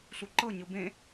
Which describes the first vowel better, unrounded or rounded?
rounded